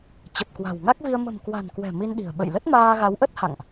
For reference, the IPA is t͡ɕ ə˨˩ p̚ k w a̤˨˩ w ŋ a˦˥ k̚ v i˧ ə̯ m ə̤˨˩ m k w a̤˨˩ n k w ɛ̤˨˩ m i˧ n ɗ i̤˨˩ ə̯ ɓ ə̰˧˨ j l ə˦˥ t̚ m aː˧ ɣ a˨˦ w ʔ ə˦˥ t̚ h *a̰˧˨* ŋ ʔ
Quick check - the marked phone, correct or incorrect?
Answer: correct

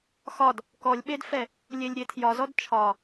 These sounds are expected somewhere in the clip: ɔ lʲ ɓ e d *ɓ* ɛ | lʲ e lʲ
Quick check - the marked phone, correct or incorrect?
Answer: incorrect: f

